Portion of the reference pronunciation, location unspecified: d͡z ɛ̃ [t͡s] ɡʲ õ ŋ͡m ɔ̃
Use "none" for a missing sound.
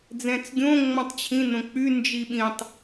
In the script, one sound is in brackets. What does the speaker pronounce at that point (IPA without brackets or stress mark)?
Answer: t͡s